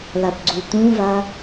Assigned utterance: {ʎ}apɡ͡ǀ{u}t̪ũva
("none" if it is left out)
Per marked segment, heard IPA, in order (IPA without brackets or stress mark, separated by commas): l, u